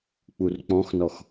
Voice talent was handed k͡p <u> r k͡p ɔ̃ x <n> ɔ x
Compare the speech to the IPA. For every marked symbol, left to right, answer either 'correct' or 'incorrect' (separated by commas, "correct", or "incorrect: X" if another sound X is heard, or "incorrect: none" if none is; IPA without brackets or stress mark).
correct, correct